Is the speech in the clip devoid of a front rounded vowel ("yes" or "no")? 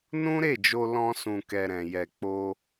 yes